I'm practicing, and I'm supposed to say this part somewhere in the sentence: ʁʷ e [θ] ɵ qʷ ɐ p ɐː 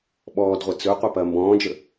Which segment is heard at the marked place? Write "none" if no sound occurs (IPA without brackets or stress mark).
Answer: t͡s